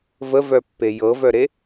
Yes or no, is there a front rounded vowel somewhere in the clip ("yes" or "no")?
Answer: yes